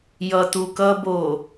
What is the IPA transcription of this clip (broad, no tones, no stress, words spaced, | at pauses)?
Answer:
jʌtukʌbo